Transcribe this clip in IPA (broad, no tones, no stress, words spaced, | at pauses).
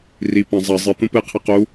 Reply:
ri pɐ̃ zˤɐ zˤɨ t̪ũpɨqʰɨ qu